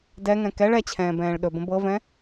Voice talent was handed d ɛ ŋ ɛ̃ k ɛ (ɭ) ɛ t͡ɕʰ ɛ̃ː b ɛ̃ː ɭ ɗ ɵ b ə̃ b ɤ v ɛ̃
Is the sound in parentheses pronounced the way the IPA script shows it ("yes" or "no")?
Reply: yes